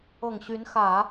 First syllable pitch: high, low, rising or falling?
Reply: low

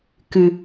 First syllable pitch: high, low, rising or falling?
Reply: low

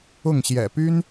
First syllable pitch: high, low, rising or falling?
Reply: falling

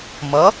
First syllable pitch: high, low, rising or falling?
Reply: rising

